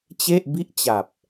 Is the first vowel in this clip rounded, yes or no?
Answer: no